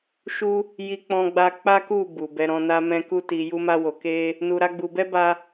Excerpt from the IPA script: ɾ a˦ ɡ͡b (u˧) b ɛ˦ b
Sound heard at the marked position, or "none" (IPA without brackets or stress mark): u˧